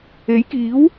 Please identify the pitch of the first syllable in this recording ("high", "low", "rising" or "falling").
rising